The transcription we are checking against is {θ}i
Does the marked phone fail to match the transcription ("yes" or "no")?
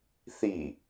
no